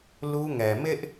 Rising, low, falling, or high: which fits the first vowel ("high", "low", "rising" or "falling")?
high